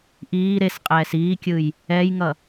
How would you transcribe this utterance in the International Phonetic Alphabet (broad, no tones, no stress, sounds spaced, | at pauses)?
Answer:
ʔ iː ɾ e s qʼ ɛː s iː kʲ ɯ j | ɛ j ŋ ʌ